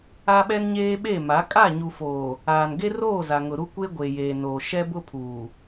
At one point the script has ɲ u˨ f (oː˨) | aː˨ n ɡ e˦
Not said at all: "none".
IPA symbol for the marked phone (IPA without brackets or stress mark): oː˨